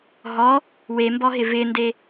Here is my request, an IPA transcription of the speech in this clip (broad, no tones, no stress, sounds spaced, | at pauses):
ɦ ɔ | w e m b ɔ ɦ ɪ v ɪ n d e